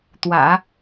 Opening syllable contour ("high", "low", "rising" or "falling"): low